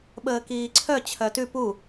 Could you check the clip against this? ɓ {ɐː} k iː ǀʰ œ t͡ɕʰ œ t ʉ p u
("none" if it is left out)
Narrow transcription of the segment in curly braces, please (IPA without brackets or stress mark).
əː